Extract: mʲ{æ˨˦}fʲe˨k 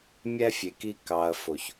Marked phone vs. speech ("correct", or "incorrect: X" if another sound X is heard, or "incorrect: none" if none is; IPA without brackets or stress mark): incorrect: æ˧